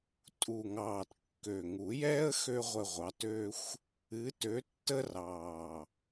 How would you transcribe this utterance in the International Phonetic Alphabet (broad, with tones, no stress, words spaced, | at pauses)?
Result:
tʼu˨˩ŋɑː˨˩t kːø˨˩ŋu˨˩˦jɛː˥ə̯ xø˥ʁʷə˦˨ʁʷɑ˨˥tø˥xʷ | ɨ˨˥tø˨˥tːə˥rɑː˨˩